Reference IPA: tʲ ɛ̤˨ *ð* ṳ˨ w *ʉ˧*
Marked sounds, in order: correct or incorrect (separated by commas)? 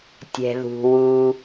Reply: correct, incorrect